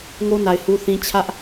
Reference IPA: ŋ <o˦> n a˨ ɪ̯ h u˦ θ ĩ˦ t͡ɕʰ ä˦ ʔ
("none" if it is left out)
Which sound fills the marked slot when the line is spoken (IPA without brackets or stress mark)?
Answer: o˦